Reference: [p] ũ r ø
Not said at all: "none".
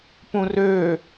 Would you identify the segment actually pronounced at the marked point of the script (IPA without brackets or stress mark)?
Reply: p